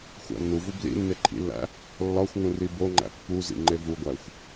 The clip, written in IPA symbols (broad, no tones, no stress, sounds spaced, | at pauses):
xʷ æ̰ nː u v u b l ḭ nː e ǃʰ ḭ lː æ̰ | lː ɒ xʷ ŋ ũ r i b o ŋ͡ǃ æ̰ pː u z ḭ ŋ͡ǃ e v u ɡʷ æ xʷ